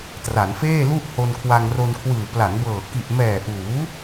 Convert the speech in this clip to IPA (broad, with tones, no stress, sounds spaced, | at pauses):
t r a˩˦ n f eː˥˩ l u˥˩ ʔ h o˧ n kʰ w a˧ ŋ r o˧ n kʰ w ɯː˨˩ p l a˩˦ n b ɤː˨˩ k i˨˩ ʔ m ɛː˨˩ ʔ uː˩˦